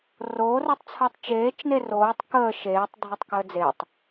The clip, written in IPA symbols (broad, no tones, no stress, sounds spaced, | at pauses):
r oː r o tˤ t͡sʰ əː tˤ t͡ʃ eː t͡ʃ n e r oː tˤ k əː ʃ eː tˤ dʱ o tˤ k əː d͡z e tˤ